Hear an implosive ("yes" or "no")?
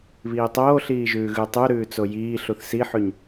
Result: no